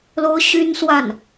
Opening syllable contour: high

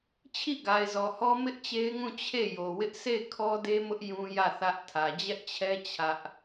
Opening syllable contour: falling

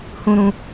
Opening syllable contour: high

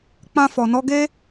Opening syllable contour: high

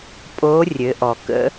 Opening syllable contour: rising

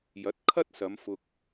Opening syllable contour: rising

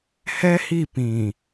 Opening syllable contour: high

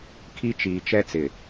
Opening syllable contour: high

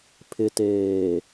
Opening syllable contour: low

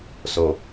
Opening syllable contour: low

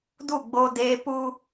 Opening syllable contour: falling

